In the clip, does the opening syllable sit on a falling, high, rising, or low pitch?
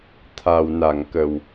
low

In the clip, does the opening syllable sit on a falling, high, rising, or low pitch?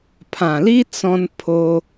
low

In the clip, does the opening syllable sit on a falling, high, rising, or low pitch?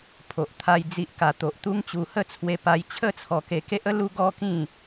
low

